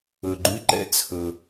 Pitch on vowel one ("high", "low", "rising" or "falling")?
low